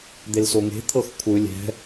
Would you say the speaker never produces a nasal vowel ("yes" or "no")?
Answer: yes